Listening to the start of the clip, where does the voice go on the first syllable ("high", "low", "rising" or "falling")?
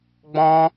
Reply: high